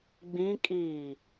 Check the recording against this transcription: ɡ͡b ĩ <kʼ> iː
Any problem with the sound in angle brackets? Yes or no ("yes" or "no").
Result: no